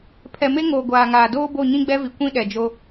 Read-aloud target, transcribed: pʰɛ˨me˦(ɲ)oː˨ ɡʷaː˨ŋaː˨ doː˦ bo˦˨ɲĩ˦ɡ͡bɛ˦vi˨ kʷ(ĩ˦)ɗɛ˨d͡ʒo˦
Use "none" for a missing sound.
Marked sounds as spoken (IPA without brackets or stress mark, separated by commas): ŋ, ĩ˦